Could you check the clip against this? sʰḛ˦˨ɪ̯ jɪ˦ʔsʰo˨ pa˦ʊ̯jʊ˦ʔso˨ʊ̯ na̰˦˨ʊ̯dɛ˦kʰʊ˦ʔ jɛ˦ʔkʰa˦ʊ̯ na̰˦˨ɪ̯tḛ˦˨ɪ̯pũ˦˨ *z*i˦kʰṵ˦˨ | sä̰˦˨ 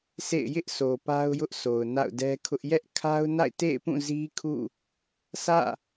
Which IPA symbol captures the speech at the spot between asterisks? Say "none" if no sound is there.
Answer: z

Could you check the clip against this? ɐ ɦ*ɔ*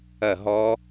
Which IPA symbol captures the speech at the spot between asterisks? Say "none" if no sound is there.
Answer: ɔ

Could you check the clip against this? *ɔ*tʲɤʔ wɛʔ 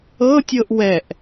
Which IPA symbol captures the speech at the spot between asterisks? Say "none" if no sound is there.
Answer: ɤ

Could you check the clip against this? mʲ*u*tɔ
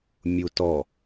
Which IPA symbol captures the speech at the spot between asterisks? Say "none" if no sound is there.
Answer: u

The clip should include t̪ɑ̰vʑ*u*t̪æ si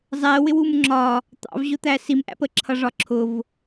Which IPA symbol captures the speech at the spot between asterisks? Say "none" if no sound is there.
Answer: ʊ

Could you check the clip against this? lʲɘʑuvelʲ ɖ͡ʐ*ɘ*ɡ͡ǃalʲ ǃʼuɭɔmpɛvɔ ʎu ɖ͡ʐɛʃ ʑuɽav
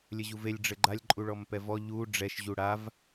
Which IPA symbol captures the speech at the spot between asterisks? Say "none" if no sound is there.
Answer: ɘ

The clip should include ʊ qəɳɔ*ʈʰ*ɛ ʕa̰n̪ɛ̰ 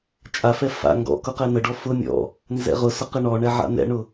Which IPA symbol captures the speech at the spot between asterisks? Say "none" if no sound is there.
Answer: ɳ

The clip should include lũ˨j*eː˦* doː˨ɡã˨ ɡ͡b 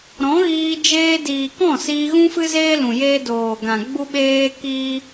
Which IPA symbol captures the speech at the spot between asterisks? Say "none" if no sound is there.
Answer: eː˦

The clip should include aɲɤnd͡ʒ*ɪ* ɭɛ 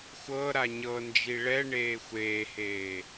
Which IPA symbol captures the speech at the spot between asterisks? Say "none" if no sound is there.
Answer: i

